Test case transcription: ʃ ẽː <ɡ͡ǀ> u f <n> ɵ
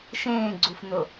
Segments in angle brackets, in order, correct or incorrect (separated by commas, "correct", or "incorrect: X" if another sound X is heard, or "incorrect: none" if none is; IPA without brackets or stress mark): correct, correct